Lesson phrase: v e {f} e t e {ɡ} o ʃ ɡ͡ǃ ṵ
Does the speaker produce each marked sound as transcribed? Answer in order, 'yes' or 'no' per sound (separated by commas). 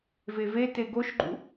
no, yes